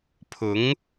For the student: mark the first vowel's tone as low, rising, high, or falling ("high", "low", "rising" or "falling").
rising